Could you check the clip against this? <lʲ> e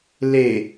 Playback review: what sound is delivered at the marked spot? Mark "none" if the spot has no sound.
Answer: l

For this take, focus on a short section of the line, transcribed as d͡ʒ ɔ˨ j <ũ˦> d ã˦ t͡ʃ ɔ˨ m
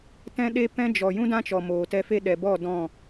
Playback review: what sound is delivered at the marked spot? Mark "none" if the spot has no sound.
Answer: ũ˦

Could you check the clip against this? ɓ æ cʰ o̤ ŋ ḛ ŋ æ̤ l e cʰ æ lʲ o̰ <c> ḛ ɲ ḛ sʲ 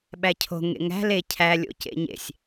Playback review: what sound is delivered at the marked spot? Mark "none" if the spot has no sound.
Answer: c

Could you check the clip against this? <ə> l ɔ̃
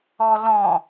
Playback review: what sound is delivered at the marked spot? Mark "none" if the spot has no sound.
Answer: ɔ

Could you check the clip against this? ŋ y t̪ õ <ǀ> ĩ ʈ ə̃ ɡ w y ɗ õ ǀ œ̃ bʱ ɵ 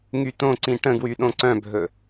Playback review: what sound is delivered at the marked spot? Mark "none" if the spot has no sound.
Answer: ǀ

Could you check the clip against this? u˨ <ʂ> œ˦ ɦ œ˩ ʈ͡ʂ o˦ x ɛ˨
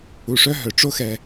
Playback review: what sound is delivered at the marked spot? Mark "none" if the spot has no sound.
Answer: ʂ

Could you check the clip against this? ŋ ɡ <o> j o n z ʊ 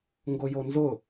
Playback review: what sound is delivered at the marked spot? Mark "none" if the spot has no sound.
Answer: o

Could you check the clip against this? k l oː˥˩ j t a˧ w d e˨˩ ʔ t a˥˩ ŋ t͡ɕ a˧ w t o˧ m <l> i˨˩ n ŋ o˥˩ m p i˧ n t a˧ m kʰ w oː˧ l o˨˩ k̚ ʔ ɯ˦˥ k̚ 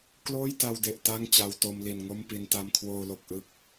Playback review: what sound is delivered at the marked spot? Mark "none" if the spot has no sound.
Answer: l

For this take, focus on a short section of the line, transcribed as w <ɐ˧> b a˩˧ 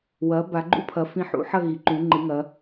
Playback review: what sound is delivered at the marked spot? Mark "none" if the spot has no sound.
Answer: ɐ˩˧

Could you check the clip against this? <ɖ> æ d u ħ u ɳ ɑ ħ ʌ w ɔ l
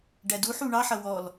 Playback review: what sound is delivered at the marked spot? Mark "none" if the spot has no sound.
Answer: ɖ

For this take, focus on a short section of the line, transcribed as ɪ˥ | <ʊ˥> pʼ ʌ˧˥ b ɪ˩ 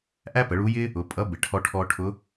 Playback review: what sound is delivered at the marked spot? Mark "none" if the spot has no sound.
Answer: ʊ˩˧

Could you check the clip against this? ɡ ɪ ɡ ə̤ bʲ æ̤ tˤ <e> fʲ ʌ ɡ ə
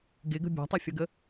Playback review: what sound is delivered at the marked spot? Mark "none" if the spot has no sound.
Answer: ɛ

